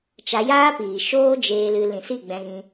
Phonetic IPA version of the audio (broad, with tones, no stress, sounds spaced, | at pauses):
t͡ʃ a˧ j aː˦ p iː˨ ʃ oː˦ d͡ʒ eː˧ l ɨ˧ l ĩ˨ s i˦˨ ɡ͡b ɛ̃˧ ɣ ĩ˧